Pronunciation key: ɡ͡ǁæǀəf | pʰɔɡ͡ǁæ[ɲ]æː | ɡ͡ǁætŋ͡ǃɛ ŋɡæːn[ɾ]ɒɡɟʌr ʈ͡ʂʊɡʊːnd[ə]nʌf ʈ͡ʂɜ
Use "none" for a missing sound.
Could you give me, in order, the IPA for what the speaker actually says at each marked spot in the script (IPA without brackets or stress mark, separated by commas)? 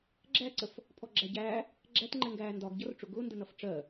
ɟ, d, ə